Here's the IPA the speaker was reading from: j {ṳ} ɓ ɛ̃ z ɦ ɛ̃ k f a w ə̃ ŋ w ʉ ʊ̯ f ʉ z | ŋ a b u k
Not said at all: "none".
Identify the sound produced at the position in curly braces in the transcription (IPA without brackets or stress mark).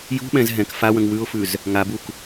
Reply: ṳ